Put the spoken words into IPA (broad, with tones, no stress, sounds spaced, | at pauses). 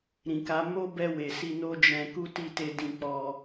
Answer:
ɾ ĩ˨ k a˨˦ m o˦ b ɛ˧ w e˨ s i˧ n o˦ d͡ʒ ɛ̃˧ k u˦ t i˦˨ t e˧ d ĩ˧ k͡p ɔ˧